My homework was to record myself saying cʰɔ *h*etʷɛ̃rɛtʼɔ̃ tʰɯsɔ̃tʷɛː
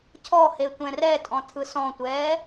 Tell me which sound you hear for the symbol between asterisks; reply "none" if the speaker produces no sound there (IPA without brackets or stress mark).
h